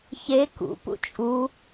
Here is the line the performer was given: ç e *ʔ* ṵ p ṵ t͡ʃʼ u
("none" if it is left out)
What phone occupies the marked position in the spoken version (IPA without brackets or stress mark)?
k